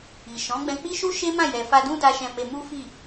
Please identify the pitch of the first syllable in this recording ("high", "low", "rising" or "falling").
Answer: low